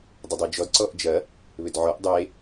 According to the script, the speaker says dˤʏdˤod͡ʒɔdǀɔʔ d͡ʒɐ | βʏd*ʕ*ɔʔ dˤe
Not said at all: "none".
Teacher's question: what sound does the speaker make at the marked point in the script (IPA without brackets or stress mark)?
ʕ